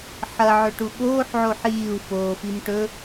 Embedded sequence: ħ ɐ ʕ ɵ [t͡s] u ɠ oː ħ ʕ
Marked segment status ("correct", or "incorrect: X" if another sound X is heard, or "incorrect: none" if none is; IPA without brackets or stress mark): incorrect: ʈ